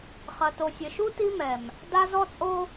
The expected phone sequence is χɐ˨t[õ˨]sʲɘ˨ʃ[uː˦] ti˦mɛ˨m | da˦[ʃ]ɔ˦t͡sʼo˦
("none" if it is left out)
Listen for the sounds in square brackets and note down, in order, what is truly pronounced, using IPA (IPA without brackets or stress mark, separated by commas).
o˨, u˦, z